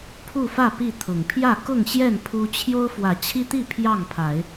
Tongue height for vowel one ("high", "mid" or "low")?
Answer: high